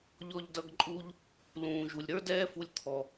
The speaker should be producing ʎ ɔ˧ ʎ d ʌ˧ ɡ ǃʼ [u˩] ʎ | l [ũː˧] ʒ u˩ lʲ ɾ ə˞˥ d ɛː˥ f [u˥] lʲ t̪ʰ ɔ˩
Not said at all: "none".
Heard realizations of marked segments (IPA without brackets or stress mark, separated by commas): u˧, ũː˩, u˧